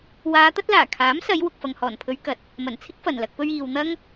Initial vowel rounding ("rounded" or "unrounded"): unrounded